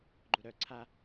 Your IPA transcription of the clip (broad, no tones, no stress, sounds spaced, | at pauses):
ɡ͡ǃ u ɾ œ ǀʰ a